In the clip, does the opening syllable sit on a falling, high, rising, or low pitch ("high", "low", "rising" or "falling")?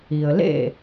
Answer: low